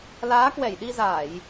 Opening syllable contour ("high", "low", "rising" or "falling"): rising